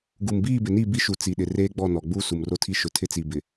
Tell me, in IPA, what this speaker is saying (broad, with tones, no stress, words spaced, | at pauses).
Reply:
ɡu˨mbiː˦˨bɪ˨ni˦˨ bi˦ʃu˨ t͡si˨ɗɪ˨ reː˦ɡ͡bɔ˦˨nɔ˨ɡ͡bu˦ su˨mro˦tʰi˦ ʃʊ˨ tʰɪ˦t͡si˨ bɪ˨